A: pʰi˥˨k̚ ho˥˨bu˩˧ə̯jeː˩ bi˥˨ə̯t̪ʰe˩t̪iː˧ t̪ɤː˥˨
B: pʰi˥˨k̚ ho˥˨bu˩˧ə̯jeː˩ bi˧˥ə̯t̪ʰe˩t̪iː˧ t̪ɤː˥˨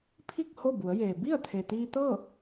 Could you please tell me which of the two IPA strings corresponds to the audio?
A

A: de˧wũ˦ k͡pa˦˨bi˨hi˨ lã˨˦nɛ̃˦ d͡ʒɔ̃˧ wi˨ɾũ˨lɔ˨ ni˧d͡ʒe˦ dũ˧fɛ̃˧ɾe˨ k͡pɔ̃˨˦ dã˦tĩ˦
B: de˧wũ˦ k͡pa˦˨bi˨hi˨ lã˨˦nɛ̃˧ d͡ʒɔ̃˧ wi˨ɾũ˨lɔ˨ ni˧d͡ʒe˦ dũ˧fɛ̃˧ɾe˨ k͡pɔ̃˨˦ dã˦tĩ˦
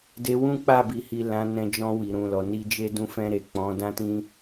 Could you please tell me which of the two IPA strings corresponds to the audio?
B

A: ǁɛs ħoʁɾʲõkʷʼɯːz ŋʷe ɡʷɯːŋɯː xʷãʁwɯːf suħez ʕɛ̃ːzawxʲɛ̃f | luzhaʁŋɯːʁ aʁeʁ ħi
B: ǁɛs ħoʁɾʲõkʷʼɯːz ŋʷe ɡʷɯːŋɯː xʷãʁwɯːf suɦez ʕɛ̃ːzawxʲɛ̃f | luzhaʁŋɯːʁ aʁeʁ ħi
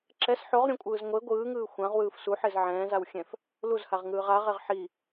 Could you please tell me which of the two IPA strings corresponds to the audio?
A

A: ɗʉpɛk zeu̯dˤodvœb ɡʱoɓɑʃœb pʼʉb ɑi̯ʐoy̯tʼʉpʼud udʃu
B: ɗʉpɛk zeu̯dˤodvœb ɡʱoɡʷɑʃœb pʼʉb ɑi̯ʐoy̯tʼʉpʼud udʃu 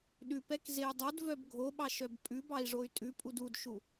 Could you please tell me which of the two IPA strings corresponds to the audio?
A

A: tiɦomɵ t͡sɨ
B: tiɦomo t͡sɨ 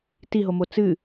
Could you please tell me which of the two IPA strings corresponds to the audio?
B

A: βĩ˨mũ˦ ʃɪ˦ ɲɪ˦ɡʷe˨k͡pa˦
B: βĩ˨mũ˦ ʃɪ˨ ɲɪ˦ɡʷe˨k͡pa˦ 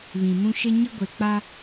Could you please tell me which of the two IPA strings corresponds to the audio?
A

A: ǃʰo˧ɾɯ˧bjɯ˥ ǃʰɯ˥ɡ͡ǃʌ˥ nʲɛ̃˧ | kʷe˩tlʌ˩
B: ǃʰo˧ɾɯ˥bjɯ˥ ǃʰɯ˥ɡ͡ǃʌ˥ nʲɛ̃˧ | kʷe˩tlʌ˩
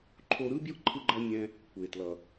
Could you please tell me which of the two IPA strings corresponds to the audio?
B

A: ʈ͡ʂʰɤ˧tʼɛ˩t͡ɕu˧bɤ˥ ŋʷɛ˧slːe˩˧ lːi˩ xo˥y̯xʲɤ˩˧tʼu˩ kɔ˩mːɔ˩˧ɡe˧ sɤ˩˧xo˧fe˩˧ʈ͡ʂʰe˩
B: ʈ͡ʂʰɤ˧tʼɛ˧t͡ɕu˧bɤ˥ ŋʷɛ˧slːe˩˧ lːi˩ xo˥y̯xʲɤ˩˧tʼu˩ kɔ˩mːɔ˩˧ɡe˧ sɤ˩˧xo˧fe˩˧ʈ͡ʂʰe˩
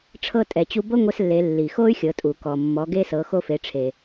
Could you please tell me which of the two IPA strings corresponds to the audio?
A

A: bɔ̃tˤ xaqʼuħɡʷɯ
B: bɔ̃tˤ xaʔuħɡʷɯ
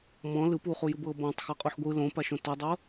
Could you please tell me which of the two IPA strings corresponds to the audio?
A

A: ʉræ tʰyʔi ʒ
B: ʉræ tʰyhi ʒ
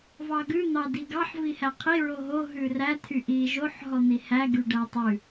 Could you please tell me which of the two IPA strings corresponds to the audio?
A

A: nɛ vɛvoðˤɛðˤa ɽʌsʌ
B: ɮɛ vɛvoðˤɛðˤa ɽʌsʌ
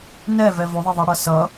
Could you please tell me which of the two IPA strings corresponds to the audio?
A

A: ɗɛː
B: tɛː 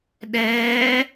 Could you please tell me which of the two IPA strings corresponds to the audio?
A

